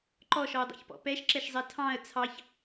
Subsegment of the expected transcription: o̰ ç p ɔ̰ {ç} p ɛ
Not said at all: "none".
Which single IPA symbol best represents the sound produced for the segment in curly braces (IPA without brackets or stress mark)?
none